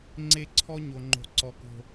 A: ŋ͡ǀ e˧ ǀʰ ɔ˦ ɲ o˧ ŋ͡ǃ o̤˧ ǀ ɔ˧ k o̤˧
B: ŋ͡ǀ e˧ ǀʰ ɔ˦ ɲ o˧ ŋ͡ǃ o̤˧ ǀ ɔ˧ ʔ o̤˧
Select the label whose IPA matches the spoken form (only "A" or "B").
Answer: A